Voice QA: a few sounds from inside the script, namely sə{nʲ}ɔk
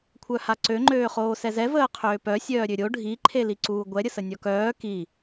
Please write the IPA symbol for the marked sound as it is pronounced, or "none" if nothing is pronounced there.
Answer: nʲ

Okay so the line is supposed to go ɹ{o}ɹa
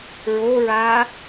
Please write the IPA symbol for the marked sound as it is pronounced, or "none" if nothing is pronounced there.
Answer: o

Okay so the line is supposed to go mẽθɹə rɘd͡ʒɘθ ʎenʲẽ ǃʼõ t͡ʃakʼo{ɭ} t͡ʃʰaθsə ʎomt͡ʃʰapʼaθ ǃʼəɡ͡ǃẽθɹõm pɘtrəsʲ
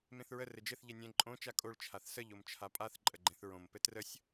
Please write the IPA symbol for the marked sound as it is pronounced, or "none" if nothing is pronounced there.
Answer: ɭ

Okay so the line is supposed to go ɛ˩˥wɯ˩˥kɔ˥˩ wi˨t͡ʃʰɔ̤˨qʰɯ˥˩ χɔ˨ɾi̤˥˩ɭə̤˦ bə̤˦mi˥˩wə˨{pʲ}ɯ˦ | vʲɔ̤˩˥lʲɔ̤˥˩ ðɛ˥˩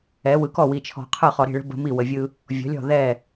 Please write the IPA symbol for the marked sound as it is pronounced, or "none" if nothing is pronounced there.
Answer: vʲ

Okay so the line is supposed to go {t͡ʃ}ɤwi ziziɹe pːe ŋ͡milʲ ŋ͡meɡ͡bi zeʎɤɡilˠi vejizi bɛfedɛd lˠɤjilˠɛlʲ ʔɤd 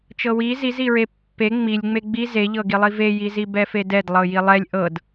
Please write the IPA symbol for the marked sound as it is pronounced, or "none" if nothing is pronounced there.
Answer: t͡ʃ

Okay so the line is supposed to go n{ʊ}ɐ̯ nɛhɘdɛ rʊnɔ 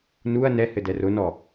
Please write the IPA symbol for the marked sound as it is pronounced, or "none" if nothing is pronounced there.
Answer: u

